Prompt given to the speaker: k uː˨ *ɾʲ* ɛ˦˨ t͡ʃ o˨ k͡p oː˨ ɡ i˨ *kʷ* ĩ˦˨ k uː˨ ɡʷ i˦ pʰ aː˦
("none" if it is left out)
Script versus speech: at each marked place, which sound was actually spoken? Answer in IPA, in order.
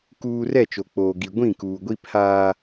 r, ɡʷ

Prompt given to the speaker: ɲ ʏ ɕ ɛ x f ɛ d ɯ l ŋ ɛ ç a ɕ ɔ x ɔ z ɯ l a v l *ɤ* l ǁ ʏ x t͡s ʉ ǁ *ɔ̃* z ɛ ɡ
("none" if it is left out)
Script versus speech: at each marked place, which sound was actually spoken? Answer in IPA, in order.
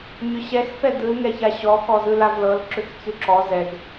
ɤ, ɔ

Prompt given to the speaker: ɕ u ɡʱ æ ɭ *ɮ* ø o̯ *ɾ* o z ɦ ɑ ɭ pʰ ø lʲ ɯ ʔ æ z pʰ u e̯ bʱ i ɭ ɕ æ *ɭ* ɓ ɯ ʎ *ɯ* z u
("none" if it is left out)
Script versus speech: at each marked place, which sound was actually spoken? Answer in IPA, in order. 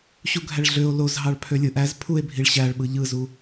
ɮ, l, ɭ, ɯ

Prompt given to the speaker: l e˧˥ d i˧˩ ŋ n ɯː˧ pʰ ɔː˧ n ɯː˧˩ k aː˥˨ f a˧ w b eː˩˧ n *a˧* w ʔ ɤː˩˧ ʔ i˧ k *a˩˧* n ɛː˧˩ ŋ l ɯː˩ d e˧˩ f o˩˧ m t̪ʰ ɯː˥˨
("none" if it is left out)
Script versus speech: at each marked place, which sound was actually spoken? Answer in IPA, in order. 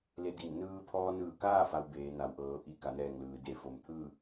a˩˧, a˩˧

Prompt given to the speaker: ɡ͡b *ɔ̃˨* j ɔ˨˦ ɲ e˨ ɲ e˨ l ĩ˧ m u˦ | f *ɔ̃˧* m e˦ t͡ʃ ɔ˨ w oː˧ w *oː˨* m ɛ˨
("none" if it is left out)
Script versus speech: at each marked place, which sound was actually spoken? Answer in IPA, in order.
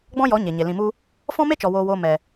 ɔ̃˦, ɔ̃˦, oː˧

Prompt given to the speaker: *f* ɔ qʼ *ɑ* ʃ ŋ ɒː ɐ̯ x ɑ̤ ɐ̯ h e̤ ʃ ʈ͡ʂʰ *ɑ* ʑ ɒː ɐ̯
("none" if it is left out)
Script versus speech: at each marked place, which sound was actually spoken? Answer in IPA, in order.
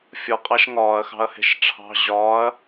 fʲ, ɑ, ɑ̤

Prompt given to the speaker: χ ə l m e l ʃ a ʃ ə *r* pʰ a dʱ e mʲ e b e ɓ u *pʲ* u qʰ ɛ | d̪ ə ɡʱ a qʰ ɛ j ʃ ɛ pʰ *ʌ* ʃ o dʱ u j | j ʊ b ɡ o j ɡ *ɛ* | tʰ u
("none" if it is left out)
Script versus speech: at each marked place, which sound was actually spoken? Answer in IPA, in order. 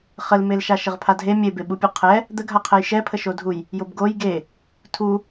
ʁ, pʲ, ə, e

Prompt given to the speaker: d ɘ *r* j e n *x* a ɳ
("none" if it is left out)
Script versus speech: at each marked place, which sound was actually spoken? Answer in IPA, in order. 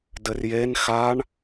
r, x

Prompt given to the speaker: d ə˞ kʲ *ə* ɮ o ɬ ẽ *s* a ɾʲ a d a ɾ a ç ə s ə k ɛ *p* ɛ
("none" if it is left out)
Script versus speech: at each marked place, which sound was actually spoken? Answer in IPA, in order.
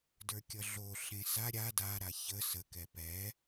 ʌ, s, p

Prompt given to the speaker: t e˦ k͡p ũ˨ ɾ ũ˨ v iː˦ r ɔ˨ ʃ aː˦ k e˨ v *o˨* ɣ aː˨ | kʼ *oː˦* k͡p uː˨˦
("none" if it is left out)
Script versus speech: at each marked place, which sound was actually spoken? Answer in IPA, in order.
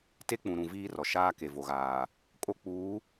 o˨, o˦

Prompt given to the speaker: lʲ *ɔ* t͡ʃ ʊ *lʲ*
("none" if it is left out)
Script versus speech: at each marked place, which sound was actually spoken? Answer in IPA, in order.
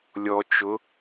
ɔ, none

